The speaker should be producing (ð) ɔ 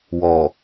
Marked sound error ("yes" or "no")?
yes